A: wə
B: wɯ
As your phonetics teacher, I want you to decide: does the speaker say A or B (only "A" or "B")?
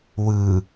B